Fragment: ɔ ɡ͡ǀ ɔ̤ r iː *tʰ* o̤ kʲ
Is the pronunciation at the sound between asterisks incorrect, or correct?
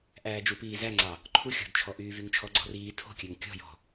correct